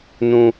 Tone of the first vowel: high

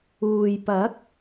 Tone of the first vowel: low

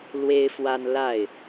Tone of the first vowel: high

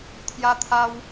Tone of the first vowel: high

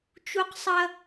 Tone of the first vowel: high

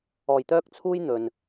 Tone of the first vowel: low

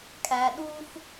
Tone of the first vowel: low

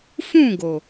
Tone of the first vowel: falling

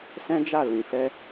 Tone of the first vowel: high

